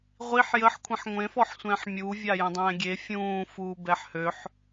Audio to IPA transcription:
ʁʷiħ jəħ kʷʰĩħŋʷẽfɔħsʷɛ̃ːħ mʲuːvʲa jə̃dˤɛ̃ːɡʲe fʲũː fuːbɛħhøħ

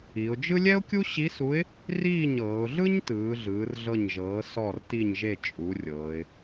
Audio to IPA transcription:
i˩˧ʊ̯d͡ʒɯ˥ lʲɛ˥ʊ̯kʲu˥ɕi˧˥su˧˥ɪ̯ | riː˥˩ɲɤː˩˧ʊ̯ɮɯ˥ɲ tɯː˩˥ɮɯː˩˥rɮɤ˥˩ɲ ʒɤː˩˥ sɔ˥˩rti˥˩ɲʒe˥˩ t͡ʃʼu˩˥rʲɤː˩˧ɪ̯

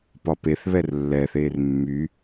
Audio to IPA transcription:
pɒpeθβɛr lːɛθeːr mːy

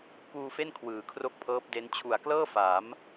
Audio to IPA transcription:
kuː˧fe˥˩n kʰwɯː˨˩kʰro˥˩k̚pʰɤː˦˥p̚de˦˥n t͡ɕʰu˨˩a̯klɤː˥˩faː˩˦m

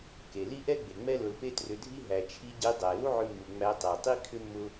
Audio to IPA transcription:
ke˨ li˦ʔɛ˦ɡ͡be˨ŋ͡mɛ˦ lʊ˧lpe˦trʏ˧dʱi˦ ɦæ˨t͡ʃʰi˧ɟe˧ dˤæ˨lu˦ʕʏ˧mːu˨ ŋ͡mæ˧ tˤæ˨tˤi˦ kʰʏ˦mːʊ˦

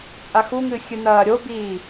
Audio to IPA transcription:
t͡sʼaxuŋɨ xʲɨnɐːɾʲobiː

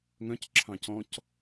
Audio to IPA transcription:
ŋœ̃cǁʰɑ̃ cɔ̃c

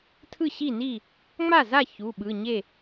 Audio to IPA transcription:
tʰɯ˥˩ɕi˥˩ni˥˩ | ŋ͡ma˥˩za˥˩ çu˩˧˩ɓɯ˩˧˩ɲe˥˩

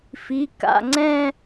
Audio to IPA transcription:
fi˩˧˩ka̰˩˧˩ŋ͡ǀɛ̃˥˧

